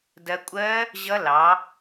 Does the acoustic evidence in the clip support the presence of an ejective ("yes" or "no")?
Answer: yes